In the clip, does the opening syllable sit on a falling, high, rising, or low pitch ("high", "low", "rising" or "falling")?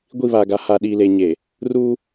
falling